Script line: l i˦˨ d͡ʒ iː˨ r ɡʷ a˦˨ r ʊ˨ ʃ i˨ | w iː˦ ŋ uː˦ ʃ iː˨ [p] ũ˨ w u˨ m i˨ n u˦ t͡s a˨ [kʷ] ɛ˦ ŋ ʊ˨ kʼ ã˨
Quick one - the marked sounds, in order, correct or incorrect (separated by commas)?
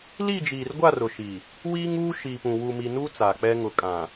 correct, incorrect